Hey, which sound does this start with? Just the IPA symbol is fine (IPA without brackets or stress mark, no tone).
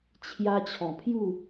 t͡ɕʰ